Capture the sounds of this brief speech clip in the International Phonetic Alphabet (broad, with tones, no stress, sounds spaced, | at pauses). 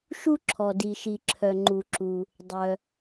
ʃ u˧ ǁʰ ɔ˩ d i˩ ʃ i˩ ǁʰ œ˩ ŋ͡ǃ u˩ ǁ u˩ | dˤ œ˩